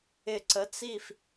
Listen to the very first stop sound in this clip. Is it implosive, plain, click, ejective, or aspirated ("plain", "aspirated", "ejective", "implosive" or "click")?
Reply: click